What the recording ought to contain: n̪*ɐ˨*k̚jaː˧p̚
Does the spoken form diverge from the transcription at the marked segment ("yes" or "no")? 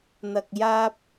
no